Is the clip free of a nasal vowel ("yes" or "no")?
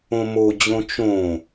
no